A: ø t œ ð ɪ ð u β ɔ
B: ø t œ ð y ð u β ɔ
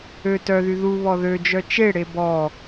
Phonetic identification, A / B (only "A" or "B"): B